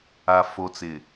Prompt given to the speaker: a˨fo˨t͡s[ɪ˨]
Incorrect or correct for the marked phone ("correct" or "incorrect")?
correct